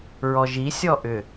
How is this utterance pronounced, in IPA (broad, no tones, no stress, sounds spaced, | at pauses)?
ɹ ɔ ʒ i sʲ ɔ ʔ ʏ